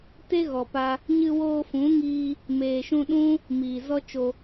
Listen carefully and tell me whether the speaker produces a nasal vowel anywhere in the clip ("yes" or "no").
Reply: yes